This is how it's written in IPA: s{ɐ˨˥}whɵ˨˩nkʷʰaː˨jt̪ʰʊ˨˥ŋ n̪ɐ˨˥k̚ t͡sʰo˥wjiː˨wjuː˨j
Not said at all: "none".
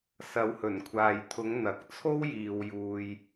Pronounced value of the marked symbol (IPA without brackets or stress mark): ɐ˨˥